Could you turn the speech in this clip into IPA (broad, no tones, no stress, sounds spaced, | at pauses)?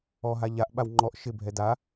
ɔ ɦ a ʎ a ʔ ɓ a w ŋ͡ǃ ɔ ʔ ʃ ɪ bʱ ɛ d a